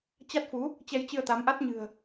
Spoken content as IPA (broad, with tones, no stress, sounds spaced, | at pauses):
t͡ɕ a˦˥ t̚ f u˨˦ | t͡ɕ ɛ˧ j t͡ɕ ɨ˧ ə̯ t̪ a˨˦ m ʔ a˦˥ t̚ ɲ ɨ̤˨˩ ə̯